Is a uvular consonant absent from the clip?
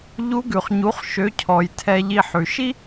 no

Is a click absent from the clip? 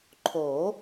no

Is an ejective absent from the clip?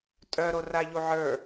no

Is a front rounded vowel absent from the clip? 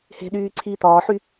no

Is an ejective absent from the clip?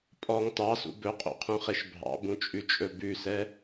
no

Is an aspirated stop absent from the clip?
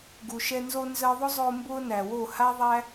yes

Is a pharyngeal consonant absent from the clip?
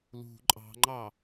yes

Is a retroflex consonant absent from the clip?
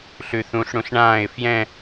no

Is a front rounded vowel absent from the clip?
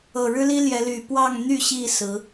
no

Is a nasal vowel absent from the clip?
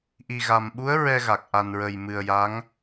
yes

